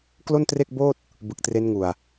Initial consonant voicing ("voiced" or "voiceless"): voiceless